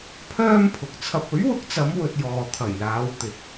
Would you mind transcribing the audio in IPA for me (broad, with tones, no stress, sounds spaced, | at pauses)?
pʰ œː˥ m pʰ ʊ˨ k̚ t͡sʰ ɐ˨ p̚ ɵ˨˥ ɥ w ʊ˨˥ k̚ t͡s ɐ˨˧ m w ɵ˧ t̚ j ɔː˨ t̪ʰ ɐ˨˩ j l aː˨˧ w t̪ ɪ˨˥ k̚